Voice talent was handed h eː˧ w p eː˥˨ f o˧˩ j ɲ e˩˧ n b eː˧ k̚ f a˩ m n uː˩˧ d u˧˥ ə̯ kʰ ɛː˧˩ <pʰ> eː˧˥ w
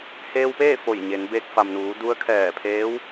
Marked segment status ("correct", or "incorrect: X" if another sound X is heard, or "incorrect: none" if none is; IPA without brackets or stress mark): correct